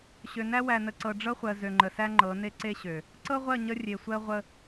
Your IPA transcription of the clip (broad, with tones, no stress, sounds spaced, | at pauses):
ɕ ø˨ n æ˦ w æ˨ n ə˨ ǀ ɤ˨ ɖ͡ʐ ɤ˦ χʷ ɜ˨ z ø˨ ŋ͡ǃ ə˨ s æ˦ ŋ͡ǃ ɤ˨˦ n e˦ ǀ e˦ ɕ ø˨ | ǀ ɤ˦ ʁʷ ɜ˦˨ ɲ ə˦ rʲ e˨ sʷ ɜ˦ ʁʷ ə˦